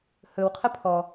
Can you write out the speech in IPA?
h ɵ w qʰ ə pʰ ɔ

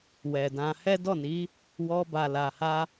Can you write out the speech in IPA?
w ɛ˨ d ã˧ h ɛ˦ d ɔ˦˨ n i˨˦ | w ɔ˧ b a˨ l a˨ h a˧

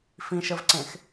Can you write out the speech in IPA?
f ĩ ʃ ə v ǀ ẽ x

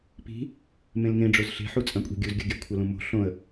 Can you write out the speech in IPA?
p i̤ | m ẽ l ŋ ẽ ɖ͡ʐ o z ɬ e̤ ħ u t͡sʼ ɐ̃ kʷʼ i̤ ɡʲ u z ɡʲ ɐ ɡʲ ɐ kʷʰ ɐ l ũ m o̤ ɬ õ ə̯

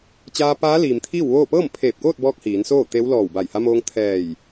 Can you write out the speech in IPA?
t͡ɕ aː˧ p aː˧˥ l iː˩ m t̪ʰ iː˥˨ w ʋ oː˥˨ p ɤː˥˨ m pʰ eː˧˩ p̚ k oː˥˨ t̚ b ɔː˧ k̚ h iː˩˧ n s oː˥˨ t̪ e˧˥ w l ɔː˧˩ w b a˧˩ j h a˧ m oː˧ ŋ t̪ʰ ɛː˧˩ j

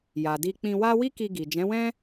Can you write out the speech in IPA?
j a˨ d i˧ k͡p ĩ˧ w a˦ w i˦ k i˧ ɡ i˨ d͡ʒ ɛ̃˨˦ w ɛ̃˦

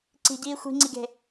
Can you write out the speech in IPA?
ǀ i̤ ɟ iː xʷ i̤ ŋ͡ǀ i ɡ e̤

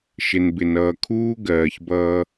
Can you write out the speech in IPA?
ʃ ɪ˨ n b ɪ˨ n ʌː˨ kʰ uː˦ ɡ ɜː˨ ç b ʌː˦

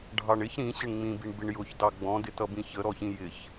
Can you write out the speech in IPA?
ɖʱ ɑ ɳ ɪ ç ɾ ĩ ɕ ɪ ɳ ŋ͡m ĩ b i ɳ b ɪ ɳ j ʊ ç d ɑ ɡ͡b ɔ̃ d ɪ t ʌ b ĩ ç ə ɾ ɔ ç ĩ j ɪ ç

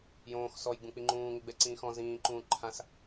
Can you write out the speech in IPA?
j õː x s ɔ j ɡ͡b ũ k͡p i ŋ͡ǃ ũː ŋ ɪ ɡ͡b ɛ ǀ ĩː x ɔ̃ z ĩː ǃ ũː ǃʰ ã s

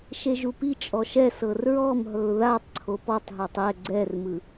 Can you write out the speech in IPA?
ʃ e ʒ u p i t͡ʃʼ ɔ ʃ ɛ s ɤ r ɹ ɔ m ɦ ɤ ʊ̯ ð a tˤ ǀʰ o p ɔ tˤ ɦ ɤ tˤ ɛ ɡ͡ǀ ɛ r m ɯ

